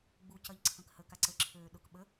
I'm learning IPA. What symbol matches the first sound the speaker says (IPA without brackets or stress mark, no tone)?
ɡ͡b